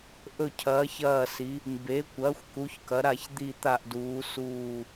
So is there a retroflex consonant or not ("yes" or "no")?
no